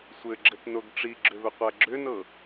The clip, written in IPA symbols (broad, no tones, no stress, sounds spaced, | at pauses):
sʷ ɘ ɡ͡ǁ ɘ t n o ɡ ʈ͡ʂ i ɡ͡ǁ ʏ β ʏ qʷ æ ɡ͡ǁ ʏ n ɤ